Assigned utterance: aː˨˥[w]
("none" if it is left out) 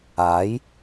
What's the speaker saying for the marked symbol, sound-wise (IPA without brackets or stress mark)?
j